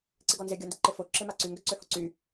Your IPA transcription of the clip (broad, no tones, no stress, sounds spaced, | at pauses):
ǀ ɪ ɡ ɔ n z ɪ ɡʲ ɔ n d ɪ ǃ ɪ f o ǁ ɪ m a ǀ y ŋ ɡ ø ǀ ø h o ǀ y